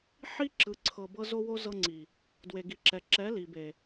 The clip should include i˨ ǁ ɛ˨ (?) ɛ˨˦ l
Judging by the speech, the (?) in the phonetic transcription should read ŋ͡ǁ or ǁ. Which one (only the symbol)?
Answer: ǁ